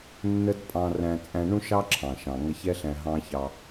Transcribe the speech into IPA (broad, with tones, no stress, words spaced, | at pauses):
nːə˦dpʼɑ̃˧ræ̃˧ t͡sʼæ̃˧ɳũ˦ʃ ɑ˦ ǁʰɑ̃˨ʃɑ̃˨ ŋʌ˧çɛ˦ɬæ̃˧ ɦɑ̃˦çɑ˧